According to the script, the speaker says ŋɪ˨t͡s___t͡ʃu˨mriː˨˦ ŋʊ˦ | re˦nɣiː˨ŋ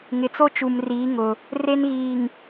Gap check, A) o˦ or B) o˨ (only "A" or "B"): A